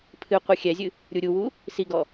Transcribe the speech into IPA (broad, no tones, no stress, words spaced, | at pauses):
pʰɨ qʷɛxʲɛzʲɨ | ɾʲuɾʲuwu | siɡɔ